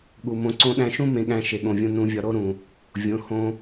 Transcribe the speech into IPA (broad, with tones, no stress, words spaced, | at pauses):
ɠu˨mõ˧ǀõ˦ɗæ̃˦ ʃũ˦ mẽ˧ɠæ̃˧ ʃe˨ɠõ˨vʲõ˧ nũ˧vʲɒ˧ ɾo˦ ɾũ˨ | vʲõ˨˦hõ˧